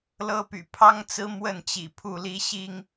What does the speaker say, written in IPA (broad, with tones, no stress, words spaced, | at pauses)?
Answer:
lɤ˦py̰˨˩ pʰɑ˦ŋt͡sɹ̩˦ mwə˥˨nt͡ɕḭ˨˩ pʰu˥˨li˦ɕi˦ŋ